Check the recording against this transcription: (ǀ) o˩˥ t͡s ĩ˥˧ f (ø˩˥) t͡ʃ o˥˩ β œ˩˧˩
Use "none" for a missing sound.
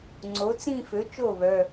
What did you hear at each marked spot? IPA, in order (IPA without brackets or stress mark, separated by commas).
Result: ŋ͡ǀ, ø˩˥